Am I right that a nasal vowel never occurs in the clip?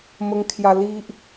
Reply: yes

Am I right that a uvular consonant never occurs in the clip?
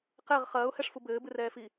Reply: no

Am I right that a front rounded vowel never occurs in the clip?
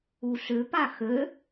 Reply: no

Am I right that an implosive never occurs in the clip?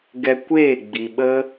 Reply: no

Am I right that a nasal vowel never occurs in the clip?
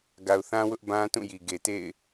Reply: no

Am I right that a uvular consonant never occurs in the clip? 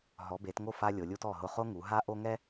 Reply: no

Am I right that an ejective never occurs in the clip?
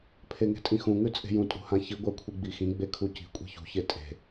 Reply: no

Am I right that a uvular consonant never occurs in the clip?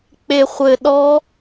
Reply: no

